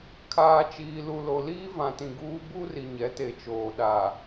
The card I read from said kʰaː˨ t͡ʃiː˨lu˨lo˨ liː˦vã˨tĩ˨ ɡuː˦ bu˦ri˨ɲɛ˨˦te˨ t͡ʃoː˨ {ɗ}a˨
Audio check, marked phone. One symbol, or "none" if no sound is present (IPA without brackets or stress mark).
ɗ